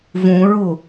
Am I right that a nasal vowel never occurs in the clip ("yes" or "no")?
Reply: no